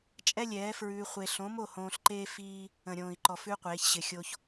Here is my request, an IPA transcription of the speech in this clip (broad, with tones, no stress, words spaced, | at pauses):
t͡ʃʼɛ˦lʲɛː˨˦fɹʉː˧χʷe˧ ɬõ˨˦mo˦˨ hõː˧ɬǃeː˦ fiː˦ | ə̃˨ɾʲõː˨i̯ǃɔ˨fʉ˧ qʷeː˨˦çɕɪ˧ xʲo˧ç